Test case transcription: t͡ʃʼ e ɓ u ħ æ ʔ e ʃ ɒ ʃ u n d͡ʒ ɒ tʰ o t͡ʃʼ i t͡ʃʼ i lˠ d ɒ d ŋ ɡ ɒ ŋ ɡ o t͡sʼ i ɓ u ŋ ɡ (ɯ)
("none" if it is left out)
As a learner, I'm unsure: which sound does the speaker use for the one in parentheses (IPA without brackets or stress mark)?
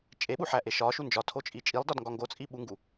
u